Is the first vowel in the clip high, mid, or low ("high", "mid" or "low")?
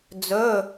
mid